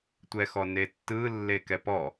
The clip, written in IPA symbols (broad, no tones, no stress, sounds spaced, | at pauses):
tʷ ɛ x ɔ n e tː ɯ lː e k ɛ p ɔ